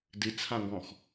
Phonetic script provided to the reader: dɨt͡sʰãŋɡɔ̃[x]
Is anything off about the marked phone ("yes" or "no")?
no